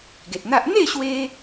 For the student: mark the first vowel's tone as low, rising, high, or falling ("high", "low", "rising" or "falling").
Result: low